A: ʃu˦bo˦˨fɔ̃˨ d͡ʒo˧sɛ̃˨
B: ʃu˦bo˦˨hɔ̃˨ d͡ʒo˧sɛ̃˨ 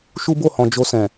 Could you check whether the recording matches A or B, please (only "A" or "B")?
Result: B